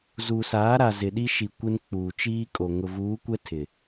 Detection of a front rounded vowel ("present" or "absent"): absent